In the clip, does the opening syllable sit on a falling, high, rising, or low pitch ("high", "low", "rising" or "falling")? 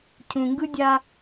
low